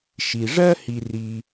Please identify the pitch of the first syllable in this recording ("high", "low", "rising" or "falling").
low